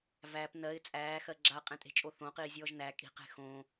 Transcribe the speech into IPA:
v æ p n ɜ ɪ̯ t͡sʼ æː x ɜ ɡ͡ǁ a qʼ ẽ tʼ e̤ t͡ʃʼ o θ õ q iː zʲ ɔː ʒ n æ kʼ i̤ q e̤ x õ

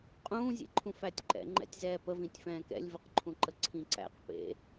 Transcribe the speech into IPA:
qʼ ũː zʲ ḛ ǃʰ ũ f æ tʲ ǃ ɛ̰ ŋ͡ǃ ɛ̰ tʲ z ɛː p ə v ĩ tʲ f ɛ̃ː k ɛ̰ lʲ v ə q ǃʰ ũ ǃ ə ǀʰ ĩ ǀ æ̰ q p ḛ

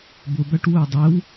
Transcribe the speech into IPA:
b ʊ b æ ʈ w ʊː dˤ ɛ w

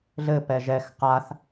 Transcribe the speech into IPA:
ɮ ɘ p ɛ ʒ ɛ x q a θ

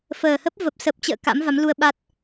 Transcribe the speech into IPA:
f əː˨˩ h ə˦˥ p̚ v ə˨˩ p̚ s ə˨˩ p̚ t͡ɕ ə̰ː˧˨ k a̰˧˥ m v a˨˦ m l u˧ ə̯ ɓ a˦˥ t̚

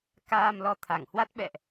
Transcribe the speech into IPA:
k aː˧ m l ɔ˨˦ t̪ʰ a˧˩ ŋ h w a˦˥ t̚ ɓ ɛ̰˧˨ ʔ

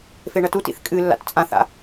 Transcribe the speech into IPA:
f e ɳ ɐ t u t ḭ θ kʼ ɨ lː a̰ t t͡sʼ ã θ a̰

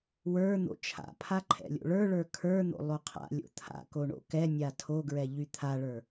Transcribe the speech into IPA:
w ə˞ n̪ o̰ t͡ʃʰ a̰ pʰ a ǃʰ ɛ̰ lʲ o̰ ɭ ə˞ ɭ ə˞ kʰ ə˞ n̪ o̰ lˠ o qʰ a̰ lʲ o̰ t̪ʰ a̰ k o ɳ o̰ k ɛ nʲ a tʰ o ɡ ɹ ɛ ʎ y t̪ʰ a ɭ ə˞

